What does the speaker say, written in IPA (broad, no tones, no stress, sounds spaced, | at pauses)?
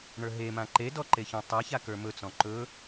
ɳ ə˞ ɦ e m ã ǃ e d ɔ ǃ e ç ɔ̃ tˤ a ç a k ə˞ m ɵ t͡s ɔ̃ ǃ ɵ